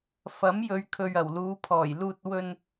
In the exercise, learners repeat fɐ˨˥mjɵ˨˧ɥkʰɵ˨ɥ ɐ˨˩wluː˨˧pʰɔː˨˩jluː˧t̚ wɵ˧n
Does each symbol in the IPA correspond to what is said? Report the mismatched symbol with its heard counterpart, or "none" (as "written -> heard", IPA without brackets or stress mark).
none